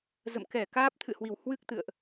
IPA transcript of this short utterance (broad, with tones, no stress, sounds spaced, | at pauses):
z ə̰˧˨ m k ɛ˧˩ k aː˦˥ p̚ t̪ʰ ɨ̰˧˨ h w i˧˩ w h w ɨ˦˥ k̚ t̪ ɨ̰˧˨ ə̯ ʔ